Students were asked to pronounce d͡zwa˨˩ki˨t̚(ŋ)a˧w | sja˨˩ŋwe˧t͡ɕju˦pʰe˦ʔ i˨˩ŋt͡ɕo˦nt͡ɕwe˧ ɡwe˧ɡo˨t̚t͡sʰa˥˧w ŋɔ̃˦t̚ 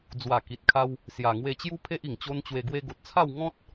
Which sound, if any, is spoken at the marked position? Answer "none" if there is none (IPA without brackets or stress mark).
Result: kʰ